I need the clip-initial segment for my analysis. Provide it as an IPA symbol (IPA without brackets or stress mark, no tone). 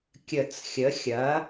kʲ